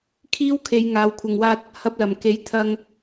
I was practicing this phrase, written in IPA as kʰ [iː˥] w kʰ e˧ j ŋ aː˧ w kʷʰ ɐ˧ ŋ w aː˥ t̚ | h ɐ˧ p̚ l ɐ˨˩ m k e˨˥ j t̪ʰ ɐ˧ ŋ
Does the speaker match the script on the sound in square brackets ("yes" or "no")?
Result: yes